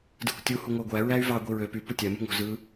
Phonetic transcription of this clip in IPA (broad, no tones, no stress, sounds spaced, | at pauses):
d ɯ kʷ tʲ u h u ŋʷ æ ɡʷ æ ɹ æ y̯ v ɑ ɡʷ i ɹ ø p y p u tʲ æ m ṳ ŋ o̤ z ɯ